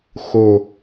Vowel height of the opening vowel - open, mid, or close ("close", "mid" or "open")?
mid